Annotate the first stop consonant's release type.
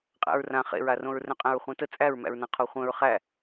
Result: ejective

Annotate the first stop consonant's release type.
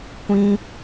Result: plain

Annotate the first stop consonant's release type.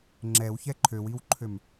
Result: click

